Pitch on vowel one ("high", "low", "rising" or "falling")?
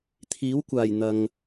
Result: rising